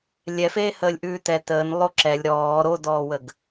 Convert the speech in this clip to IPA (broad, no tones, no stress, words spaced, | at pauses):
lʲɛfeːhəːlʲ ʔʉːtɛ təːn lˠoǁɛlʲ ɾɔː ɾodɔːwəɡ